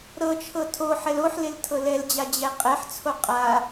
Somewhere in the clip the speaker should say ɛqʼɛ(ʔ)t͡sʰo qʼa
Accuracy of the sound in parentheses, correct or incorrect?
incorrect: ħ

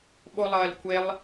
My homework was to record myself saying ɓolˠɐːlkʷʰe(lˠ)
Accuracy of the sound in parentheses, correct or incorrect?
correct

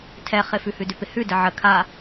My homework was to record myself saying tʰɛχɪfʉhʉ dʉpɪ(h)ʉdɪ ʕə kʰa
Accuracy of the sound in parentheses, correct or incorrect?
correct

